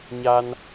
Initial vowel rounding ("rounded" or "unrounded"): unrounded